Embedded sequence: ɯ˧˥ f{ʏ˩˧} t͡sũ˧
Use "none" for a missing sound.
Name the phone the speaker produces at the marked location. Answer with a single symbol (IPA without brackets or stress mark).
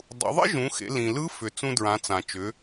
ʏ˩